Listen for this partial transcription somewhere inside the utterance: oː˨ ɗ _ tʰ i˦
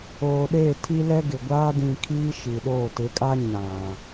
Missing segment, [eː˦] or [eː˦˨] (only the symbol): eː˦˨